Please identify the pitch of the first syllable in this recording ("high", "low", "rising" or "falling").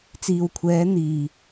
low